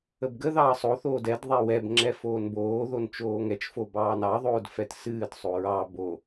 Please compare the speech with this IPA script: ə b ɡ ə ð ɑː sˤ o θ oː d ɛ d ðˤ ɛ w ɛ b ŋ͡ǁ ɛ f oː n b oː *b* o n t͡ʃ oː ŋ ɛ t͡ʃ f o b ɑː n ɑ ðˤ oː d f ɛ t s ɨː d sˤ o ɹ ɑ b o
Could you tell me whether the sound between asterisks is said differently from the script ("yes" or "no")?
yes